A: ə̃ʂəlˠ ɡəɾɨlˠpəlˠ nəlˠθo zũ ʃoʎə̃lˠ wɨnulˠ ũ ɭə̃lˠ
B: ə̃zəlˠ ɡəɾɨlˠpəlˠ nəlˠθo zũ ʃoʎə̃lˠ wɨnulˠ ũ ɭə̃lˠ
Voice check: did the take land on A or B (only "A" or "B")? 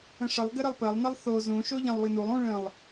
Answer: A